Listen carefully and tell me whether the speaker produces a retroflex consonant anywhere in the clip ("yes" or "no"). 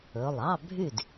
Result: no